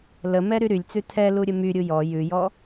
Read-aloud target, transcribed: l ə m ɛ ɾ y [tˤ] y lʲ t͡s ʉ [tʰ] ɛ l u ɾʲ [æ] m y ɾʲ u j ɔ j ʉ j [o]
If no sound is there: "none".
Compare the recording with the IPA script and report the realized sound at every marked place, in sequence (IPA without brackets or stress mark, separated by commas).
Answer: ɾ, tʰ, ə, ɔ